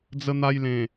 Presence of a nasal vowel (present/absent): present